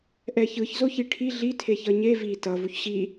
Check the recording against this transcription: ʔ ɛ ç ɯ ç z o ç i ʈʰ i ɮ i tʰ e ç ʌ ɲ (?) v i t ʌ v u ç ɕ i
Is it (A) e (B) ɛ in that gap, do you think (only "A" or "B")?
A